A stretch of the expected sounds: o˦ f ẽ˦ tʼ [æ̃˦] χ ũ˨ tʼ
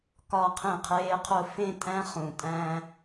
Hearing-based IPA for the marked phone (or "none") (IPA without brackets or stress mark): æ̃˦